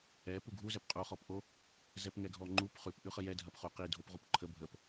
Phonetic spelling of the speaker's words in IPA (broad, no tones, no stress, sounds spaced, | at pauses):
ɛ p u ɡʱ u z ɛ p qʼ u χ ɔ p ʔ o | z ɛ p ŋ ɛ ɡʱ ɔ ŋ͡ǃ u p χ ʉ p ʔ ʉ χ ə j ɛ dʱ ɐ p χ u q i dʱ o p ʁ u p ǃʰ ə bʱ ə p